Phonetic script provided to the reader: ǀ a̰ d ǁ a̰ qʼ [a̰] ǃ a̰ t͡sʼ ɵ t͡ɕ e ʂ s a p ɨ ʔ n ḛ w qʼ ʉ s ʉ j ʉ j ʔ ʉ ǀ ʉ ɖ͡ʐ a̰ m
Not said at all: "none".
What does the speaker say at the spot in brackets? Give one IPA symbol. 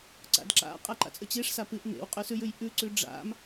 a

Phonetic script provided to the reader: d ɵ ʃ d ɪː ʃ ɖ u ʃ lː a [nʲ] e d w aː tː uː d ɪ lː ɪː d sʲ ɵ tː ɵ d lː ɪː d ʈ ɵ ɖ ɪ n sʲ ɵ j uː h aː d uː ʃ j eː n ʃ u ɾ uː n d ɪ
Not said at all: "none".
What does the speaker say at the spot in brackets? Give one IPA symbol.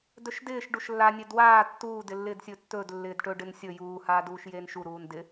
nʲ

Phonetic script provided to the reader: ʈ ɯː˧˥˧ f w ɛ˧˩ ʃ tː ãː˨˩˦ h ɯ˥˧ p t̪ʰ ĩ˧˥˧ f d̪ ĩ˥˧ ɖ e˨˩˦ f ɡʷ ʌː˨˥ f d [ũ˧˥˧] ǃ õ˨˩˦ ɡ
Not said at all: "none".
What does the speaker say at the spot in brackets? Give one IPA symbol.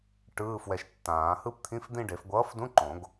ũ˧˥˧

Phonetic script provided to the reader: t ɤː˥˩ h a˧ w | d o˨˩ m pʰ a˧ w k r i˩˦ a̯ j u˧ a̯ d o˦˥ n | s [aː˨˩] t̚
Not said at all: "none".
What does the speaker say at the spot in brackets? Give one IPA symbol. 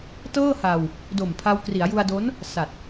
a˨˩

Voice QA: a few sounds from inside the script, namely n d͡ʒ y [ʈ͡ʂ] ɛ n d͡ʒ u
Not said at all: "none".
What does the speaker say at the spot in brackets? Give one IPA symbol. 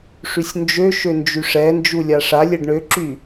ʂ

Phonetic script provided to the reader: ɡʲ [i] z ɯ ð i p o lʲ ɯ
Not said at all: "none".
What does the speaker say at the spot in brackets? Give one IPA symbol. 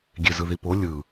e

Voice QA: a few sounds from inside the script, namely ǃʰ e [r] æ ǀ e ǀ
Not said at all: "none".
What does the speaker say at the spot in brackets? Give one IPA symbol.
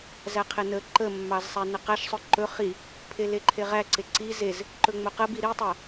ʁ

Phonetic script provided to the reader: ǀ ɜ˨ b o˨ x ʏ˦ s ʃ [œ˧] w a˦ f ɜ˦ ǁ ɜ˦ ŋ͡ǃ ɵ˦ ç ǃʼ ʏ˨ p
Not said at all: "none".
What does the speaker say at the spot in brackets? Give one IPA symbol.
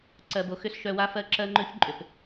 œ˧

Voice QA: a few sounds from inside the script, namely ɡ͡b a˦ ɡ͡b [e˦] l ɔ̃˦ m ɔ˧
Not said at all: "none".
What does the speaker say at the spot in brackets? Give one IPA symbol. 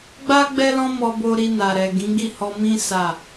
ɛ˦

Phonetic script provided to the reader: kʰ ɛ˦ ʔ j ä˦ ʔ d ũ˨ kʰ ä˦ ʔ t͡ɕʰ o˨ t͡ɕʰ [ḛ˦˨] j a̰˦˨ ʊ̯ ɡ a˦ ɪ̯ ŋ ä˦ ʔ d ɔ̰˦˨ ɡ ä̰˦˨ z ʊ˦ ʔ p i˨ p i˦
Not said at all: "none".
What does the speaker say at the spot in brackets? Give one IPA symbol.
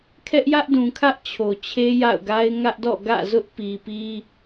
e˦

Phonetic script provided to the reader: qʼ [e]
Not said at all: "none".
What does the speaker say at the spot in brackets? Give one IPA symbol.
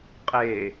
e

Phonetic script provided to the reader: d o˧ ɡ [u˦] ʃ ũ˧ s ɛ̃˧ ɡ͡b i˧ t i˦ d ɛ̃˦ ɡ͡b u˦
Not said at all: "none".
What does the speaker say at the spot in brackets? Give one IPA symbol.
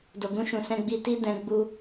ũ˦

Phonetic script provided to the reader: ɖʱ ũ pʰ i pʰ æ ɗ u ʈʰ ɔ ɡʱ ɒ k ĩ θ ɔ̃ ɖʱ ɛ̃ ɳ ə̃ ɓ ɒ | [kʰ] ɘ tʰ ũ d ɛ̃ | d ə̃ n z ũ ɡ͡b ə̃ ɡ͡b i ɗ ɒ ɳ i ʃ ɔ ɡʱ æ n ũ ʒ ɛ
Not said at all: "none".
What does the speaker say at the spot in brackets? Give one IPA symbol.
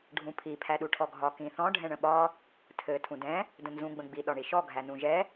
tʰ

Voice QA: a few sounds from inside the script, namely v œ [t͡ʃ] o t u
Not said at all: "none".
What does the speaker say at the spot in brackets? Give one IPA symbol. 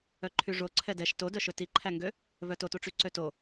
t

